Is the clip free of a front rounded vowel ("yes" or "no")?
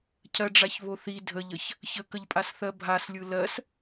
yes